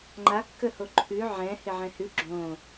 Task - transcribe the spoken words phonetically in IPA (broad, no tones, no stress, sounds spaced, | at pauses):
ŋ͡ǃ a kː ə h o ǃʰ ʉ ʕ ɛ̃ h ɪ ʕ ɛ̃ h ʉ ɡ͡ǁ õ